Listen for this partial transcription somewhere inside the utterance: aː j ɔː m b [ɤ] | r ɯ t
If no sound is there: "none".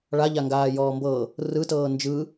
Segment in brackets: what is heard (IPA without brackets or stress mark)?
ɤ